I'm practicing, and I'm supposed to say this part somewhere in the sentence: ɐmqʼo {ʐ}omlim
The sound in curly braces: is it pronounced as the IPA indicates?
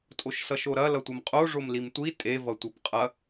yes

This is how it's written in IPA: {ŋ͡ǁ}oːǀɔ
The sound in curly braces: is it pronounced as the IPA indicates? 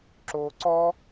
no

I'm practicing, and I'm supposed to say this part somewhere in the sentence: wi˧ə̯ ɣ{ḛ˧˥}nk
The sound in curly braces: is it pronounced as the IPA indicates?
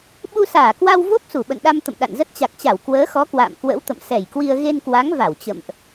no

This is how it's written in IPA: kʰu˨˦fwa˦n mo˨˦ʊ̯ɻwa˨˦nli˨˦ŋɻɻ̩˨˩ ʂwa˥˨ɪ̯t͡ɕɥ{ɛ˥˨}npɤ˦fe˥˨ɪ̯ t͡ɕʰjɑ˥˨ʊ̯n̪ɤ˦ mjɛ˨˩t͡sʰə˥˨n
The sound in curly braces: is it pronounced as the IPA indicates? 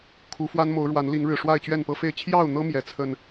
yes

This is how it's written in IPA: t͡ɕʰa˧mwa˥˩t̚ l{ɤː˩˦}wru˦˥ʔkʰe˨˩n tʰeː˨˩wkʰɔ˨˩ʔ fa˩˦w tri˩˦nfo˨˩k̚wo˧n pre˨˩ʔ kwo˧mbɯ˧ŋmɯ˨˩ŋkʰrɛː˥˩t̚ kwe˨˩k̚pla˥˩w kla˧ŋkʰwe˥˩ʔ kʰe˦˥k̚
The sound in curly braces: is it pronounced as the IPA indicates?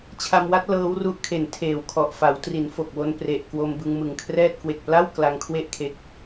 no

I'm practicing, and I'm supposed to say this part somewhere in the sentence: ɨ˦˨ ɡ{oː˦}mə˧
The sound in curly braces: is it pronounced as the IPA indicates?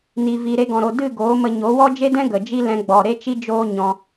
no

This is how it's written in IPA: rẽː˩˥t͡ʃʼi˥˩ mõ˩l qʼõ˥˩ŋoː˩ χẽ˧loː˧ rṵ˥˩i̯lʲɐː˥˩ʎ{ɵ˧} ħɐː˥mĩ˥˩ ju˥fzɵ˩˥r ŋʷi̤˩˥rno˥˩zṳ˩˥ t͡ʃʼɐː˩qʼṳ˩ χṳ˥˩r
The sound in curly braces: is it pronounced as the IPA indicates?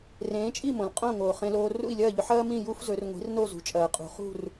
yes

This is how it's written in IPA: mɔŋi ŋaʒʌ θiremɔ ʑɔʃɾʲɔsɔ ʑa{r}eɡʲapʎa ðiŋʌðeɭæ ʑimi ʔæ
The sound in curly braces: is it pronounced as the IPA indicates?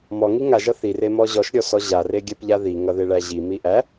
yes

